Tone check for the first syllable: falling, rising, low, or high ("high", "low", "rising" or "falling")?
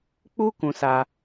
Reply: high